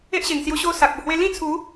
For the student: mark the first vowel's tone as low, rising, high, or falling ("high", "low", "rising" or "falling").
high